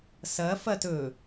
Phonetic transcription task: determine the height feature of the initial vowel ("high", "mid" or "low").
low